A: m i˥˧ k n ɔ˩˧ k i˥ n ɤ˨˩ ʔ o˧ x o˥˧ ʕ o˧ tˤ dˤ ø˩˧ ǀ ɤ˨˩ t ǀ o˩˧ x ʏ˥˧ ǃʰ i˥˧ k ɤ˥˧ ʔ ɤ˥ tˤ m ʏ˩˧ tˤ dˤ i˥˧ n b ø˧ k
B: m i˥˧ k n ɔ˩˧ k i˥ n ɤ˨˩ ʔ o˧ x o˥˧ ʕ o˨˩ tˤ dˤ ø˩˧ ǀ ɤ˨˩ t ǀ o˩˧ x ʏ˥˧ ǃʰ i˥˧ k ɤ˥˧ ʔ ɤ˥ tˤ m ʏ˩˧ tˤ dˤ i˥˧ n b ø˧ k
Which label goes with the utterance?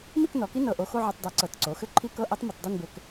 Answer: A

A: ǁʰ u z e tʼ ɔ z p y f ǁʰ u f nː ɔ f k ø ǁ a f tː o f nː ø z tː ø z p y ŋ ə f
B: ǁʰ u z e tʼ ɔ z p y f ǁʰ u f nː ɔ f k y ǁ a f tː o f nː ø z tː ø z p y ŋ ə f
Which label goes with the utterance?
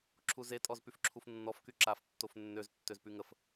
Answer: B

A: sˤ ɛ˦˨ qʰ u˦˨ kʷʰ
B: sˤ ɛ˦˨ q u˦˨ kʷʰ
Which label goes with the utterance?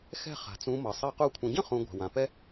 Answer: B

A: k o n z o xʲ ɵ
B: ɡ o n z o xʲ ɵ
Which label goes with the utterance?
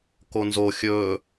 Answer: A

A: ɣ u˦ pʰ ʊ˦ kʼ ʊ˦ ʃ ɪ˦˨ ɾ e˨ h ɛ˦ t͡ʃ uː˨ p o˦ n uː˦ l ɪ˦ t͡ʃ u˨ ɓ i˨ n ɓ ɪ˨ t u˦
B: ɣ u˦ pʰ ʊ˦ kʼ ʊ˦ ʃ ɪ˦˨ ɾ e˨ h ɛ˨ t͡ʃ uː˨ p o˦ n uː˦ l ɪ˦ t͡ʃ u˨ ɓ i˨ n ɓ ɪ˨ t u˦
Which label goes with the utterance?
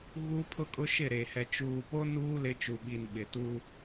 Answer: B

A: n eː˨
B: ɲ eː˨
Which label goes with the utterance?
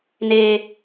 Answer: A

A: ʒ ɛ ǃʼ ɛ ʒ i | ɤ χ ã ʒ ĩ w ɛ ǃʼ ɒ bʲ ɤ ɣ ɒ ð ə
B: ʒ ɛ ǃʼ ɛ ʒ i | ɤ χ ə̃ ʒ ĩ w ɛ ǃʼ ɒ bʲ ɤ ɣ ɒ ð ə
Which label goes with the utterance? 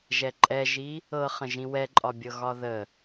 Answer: B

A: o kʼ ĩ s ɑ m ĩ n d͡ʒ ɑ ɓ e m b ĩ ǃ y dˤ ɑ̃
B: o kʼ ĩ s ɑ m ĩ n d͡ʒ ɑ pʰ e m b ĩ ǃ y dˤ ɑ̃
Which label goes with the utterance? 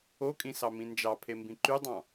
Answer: B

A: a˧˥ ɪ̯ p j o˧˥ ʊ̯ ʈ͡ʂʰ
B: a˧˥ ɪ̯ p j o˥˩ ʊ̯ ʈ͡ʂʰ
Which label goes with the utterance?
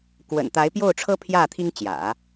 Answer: B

